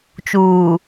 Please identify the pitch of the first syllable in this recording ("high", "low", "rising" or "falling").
low